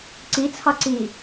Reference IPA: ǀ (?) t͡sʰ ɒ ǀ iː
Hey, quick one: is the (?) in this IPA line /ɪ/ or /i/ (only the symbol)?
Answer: i